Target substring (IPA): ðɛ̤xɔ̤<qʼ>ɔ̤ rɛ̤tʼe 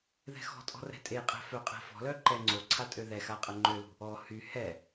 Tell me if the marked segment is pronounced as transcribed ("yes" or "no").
no